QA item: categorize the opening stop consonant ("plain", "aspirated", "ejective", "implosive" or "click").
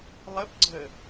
plain